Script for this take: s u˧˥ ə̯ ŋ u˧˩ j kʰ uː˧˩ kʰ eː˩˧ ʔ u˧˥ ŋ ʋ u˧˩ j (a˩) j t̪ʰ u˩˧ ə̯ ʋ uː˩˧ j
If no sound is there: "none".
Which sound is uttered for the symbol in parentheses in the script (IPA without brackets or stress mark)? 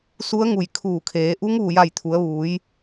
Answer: a˧˩